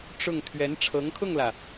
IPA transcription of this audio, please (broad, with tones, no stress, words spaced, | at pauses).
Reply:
ʈ͡ʂʊ˥˩ŋ t̪ʰɥɛ˧˥nʈ͡ʂʰɤ˧˥ŋkʰʊ˥˩ŋlä˩